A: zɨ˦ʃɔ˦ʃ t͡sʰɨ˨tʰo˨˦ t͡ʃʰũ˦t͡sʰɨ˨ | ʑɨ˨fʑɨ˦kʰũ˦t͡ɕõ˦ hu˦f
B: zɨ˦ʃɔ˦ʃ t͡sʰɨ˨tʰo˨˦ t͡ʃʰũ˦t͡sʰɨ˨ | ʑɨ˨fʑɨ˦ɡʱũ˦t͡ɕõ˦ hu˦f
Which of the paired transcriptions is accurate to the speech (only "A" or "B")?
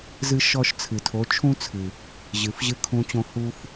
A